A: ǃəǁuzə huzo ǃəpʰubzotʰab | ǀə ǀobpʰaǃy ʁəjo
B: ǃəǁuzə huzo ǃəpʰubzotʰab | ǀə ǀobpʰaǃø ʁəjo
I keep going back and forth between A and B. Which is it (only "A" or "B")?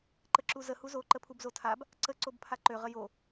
B